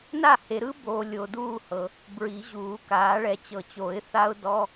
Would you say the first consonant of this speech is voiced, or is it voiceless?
voiced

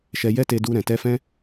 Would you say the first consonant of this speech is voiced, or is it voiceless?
voiceless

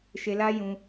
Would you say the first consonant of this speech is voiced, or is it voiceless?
voiceless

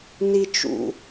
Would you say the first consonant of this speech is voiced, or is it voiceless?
voiced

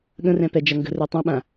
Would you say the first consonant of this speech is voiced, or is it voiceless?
voiced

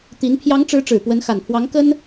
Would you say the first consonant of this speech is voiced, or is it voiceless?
voiceless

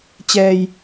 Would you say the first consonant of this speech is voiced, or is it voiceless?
voiceless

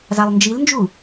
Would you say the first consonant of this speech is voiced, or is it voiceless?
voiced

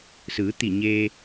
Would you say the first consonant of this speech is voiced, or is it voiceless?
voiceless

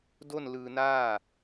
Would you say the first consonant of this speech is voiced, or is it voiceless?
voiced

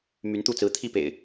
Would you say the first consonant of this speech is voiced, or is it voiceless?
voiced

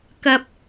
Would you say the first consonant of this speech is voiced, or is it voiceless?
voiceless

